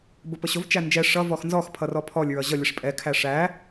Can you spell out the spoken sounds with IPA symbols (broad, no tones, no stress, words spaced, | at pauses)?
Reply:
bʊpəɕʊv t͡ʃænd͡ʒɛ ʂʌ vɔxnzɔx pʰʌrɔpʰɔlʲ ɹʌʑʌ lʲəʂpʼɛ kʰæʂæ